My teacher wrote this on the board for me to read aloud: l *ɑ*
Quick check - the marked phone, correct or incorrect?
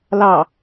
correct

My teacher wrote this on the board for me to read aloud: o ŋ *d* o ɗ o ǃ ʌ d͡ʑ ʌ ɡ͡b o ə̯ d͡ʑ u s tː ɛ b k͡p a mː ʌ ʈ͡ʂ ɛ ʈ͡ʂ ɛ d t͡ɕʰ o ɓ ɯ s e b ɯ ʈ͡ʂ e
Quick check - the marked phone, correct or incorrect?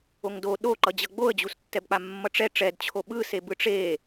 correct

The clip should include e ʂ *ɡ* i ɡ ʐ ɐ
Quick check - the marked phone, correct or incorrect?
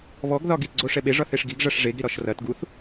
correct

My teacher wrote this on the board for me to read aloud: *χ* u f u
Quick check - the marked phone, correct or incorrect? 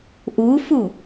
incorrect: ʔ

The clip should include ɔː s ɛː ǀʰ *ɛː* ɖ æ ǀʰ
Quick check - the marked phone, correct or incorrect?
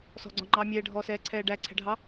correct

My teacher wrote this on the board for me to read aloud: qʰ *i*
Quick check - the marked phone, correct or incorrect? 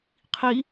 correct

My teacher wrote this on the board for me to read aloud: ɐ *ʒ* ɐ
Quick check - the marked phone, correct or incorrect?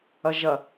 correct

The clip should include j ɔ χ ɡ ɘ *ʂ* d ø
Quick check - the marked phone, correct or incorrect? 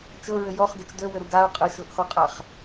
incorrect: t͡ʃ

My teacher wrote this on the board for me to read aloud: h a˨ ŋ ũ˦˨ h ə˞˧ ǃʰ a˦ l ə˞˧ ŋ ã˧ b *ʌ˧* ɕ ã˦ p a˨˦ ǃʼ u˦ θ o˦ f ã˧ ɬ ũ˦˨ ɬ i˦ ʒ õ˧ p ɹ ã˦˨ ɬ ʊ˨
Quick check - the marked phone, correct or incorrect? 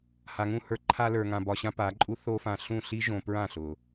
incorrect: ɒ˧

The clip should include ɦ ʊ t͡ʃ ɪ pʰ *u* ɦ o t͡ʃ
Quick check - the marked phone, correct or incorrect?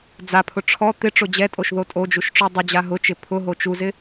incorrect: ʊ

